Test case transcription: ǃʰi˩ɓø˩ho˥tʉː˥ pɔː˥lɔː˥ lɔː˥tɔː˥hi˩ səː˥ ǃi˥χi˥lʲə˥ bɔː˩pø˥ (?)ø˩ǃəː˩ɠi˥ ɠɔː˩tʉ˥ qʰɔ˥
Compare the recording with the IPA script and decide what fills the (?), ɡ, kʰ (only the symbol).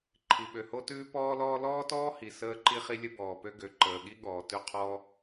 ɡ